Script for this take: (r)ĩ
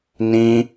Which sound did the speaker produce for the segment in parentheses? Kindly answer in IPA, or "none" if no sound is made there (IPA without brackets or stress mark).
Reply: n